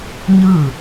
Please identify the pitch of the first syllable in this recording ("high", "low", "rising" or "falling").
falling